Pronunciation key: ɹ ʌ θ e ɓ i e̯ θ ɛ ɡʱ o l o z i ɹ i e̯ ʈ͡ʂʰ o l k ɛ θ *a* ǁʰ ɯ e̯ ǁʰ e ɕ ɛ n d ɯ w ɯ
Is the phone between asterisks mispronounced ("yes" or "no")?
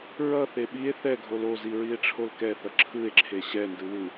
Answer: yes